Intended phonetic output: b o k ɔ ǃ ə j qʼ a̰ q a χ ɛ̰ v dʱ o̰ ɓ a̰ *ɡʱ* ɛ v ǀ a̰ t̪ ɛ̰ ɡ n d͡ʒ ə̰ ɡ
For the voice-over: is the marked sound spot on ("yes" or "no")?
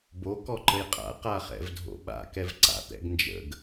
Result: no